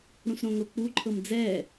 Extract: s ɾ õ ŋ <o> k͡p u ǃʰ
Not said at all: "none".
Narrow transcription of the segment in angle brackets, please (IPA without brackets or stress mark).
o